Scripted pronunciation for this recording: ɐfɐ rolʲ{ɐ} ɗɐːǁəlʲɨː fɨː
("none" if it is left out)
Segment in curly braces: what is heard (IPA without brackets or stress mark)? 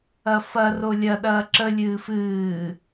ɐ